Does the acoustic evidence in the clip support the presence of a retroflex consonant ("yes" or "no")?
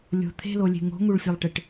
yes